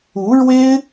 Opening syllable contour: rising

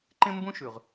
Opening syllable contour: high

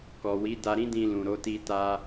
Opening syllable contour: low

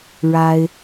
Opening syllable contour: high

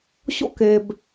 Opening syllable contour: high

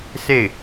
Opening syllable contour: falling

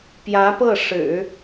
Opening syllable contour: rising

